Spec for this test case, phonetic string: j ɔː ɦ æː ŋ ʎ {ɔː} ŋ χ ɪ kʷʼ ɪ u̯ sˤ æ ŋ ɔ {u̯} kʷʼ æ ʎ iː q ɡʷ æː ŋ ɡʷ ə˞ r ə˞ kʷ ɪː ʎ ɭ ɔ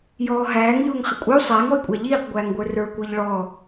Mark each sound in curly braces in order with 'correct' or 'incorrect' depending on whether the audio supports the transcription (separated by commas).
incorrect, incorrect